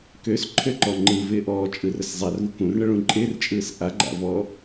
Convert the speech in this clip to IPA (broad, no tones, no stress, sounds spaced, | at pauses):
k ø s ǃʰ ø ǃ ɔ ŋ͡ǃ ɯ v ɪː ʔ ɔː t͡ʃʼ ɯ r ə s zˤ a r v u k ũ r ɳ ə ɭ ũ ǃʼ ɪː r t͡ʃʼ ɯː s ʔ a ɡ͡ǃ a̰ v ɔ